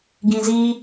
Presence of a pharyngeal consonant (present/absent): absent